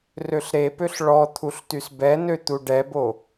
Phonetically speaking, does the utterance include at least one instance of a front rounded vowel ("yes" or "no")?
yes